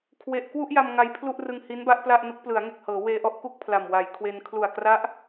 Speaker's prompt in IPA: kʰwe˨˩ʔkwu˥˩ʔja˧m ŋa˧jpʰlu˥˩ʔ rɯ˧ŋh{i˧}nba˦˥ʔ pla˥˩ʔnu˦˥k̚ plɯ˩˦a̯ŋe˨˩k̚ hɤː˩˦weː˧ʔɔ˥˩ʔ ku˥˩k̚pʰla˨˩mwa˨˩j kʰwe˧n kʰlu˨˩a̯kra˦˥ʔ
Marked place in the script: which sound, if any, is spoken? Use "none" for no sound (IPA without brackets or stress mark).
i˦˥